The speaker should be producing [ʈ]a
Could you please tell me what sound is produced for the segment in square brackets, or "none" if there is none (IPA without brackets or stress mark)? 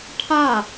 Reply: ʈʰ